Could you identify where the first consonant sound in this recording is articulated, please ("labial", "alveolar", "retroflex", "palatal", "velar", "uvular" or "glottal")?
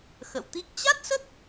velar